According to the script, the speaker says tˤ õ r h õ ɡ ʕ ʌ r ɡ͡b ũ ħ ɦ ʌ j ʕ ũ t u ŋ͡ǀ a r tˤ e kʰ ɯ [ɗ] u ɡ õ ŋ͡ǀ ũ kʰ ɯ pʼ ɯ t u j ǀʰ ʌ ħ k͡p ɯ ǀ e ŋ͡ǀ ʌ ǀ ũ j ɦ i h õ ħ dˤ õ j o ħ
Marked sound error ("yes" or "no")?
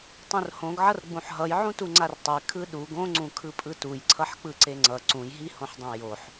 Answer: no